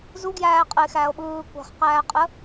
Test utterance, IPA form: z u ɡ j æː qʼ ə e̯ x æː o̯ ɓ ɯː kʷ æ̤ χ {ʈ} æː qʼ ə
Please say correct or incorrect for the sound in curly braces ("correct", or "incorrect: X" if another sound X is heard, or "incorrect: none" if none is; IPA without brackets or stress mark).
incorrect: q